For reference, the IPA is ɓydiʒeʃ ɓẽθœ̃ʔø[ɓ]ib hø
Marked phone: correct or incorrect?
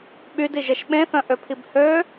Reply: incorrect